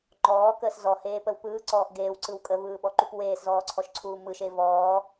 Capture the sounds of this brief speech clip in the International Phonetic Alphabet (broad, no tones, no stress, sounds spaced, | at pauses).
ŋ͡ǃ ɔː k əː s z ɔ h eː p ə w p ɯː ǀ ɔː ʔ ɡ eː w ǀ ɯ w kʼ ə v ɯː ɓ ɔ ǃ u p w eː s z ɔː ǀʰ ɔ ʃ ǀʰ uː m ɯ ʃ e v ɔː